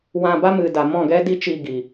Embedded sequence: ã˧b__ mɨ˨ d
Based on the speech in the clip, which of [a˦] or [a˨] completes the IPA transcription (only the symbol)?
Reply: a˦